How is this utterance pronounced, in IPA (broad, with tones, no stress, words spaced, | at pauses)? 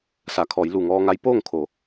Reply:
sa˩ kʰɔː˩˧jlu˧˩ŋɔː˧ŋa˧˥j poː˥˨ŋ kʰo˩˧